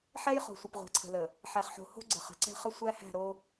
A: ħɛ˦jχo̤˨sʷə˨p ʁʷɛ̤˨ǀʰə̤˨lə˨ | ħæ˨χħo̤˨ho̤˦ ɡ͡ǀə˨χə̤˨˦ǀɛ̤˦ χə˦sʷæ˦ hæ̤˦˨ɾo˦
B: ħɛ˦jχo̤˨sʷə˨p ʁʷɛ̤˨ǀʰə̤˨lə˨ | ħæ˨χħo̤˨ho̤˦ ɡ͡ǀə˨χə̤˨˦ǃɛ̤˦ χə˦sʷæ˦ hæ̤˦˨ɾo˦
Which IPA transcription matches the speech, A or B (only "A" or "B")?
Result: A